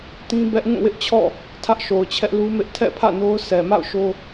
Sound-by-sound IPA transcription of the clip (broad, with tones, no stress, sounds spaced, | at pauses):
t ĩ˦ b ɛ˦ ʔ ŋ ũ˦˨ w ɪ˦ ʔ t͡ɕʰ ɔ̰˦˨ | tʰ ä˦ ʔ ʃ o˨ ʊ̯ t͡ɕʰ ɛ˦ ʔ l u˦ m ɪ˦ ʔ tʰ ɛ̰˦˨ pʰ ä̰˦˨ n o˦ ʊ̯ sʰ ɛ˨ m a̰˦˨ ʊ̯ ʃ o˦